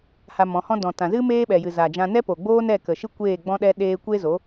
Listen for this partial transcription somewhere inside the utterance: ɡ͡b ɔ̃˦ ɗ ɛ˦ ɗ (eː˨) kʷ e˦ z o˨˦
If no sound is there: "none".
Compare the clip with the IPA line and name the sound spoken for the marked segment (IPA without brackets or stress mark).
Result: eː˦